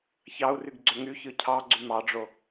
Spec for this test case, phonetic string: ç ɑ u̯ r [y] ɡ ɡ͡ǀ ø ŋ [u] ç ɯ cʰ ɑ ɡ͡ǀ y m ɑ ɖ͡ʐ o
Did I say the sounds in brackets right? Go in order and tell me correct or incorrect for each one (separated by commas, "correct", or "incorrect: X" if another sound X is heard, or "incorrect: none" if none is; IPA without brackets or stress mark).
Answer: correct, incorrect: y